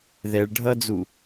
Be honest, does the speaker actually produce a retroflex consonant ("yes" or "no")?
yes